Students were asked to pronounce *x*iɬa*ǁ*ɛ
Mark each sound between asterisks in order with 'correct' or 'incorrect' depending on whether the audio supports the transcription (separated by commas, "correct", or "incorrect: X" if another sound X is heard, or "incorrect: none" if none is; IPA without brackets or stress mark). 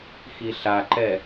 correct, incorrect: ǃ